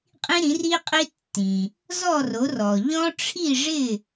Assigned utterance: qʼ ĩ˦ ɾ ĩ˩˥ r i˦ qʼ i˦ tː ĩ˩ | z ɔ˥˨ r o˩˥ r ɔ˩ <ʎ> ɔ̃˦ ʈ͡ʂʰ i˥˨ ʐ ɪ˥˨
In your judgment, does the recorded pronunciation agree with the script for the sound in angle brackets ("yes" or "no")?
yes